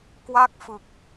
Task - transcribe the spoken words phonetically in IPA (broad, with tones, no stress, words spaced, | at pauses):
kwa˥˩k̚fɯ˨˩k̚